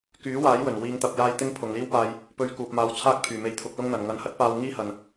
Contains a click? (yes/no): no